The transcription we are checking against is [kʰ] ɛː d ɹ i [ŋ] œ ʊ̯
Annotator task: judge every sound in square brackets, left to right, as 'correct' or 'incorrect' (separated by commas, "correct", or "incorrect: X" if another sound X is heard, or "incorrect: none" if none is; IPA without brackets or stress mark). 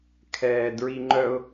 correct, incorrect: ŋ͡ǃ